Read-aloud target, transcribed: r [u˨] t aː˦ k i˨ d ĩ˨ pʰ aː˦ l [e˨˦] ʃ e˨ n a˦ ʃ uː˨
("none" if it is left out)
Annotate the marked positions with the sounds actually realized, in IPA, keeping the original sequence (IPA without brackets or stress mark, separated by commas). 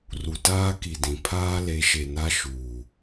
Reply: u˨, e˨˦